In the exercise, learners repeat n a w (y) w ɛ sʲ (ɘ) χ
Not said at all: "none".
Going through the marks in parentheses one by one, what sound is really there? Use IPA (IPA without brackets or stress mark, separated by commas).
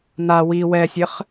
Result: i, ɘ